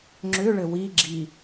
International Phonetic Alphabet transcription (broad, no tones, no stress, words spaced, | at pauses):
ŋ͡ǁʏɭɘ wiɡ͡ǁi